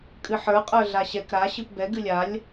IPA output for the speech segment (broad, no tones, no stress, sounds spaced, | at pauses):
kʼ ɨ ħ ə˞ qʼ ə˞ ɮ a ɕ ɛ k ɾ a ɕ ɨ p b ɛ ɡ ɨ lʲ a lʲ